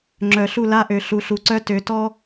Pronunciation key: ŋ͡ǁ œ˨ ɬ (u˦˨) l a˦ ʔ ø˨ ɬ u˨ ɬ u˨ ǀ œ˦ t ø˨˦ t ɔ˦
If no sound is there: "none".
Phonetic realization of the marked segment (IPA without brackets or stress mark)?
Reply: u˦˨